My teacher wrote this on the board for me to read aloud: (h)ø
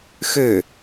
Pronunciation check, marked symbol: incorrect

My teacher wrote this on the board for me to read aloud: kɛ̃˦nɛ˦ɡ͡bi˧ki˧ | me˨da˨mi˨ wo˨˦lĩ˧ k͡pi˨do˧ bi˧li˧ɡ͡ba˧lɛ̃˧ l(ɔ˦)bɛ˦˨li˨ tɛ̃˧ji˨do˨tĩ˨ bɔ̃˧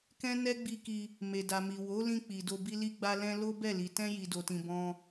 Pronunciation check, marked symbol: incorrect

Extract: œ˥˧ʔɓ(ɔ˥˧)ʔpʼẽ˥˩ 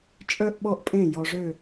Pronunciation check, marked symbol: correct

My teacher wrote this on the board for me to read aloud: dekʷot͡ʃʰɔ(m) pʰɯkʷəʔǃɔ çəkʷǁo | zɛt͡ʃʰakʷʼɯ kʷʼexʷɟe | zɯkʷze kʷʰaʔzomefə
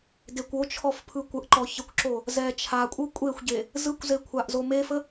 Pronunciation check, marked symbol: incorrect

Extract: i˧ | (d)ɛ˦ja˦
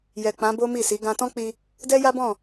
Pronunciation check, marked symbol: correct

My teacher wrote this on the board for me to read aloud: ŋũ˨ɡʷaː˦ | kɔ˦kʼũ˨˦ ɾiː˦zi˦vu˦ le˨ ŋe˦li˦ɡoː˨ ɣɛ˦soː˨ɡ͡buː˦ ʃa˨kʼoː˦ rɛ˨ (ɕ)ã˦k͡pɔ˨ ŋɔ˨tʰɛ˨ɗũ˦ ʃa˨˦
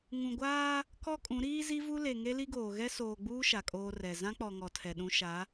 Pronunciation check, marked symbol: incorrect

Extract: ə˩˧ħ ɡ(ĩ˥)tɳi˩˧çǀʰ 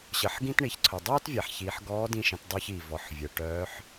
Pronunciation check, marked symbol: correct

